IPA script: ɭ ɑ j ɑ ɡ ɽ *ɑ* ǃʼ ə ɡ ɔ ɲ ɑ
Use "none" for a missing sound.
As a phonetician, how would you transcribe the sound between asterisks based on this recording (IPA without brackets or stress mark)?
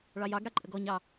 a